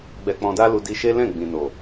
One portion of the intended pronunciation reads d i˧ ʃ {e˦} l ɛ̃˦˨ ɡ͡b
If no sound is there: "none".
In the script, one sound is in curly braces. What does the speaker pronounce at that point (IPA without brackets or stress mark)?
e˦